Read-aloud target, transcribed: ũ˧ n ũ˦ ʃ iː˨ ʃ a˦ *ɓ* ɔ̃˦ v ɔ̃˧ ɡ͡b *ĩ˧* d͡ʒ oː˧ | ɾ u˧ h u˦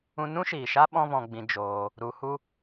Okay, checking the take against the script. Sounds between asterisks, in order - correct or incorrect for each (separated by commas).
correct, correct